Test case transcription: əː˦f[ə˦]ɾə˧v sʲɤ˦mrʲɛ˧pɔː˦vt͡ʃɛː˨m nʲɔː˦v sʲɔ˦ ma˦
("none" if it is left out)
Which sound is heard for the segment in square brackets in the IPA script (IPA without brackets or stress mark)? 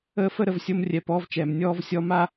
ə˦